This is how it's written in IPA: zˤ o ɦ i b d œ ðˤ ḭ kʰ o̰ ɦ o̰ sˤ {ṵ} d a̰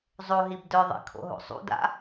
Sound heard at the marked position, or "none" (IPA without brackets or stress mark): ṵ